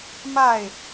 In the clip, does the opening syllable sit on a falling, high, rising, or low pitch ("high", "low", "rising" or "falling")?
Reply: falling